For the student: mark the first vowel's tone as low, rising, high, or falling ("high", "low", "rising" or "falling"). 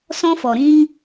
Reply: high